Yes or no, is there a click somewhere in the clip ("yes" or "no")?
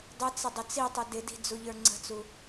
yes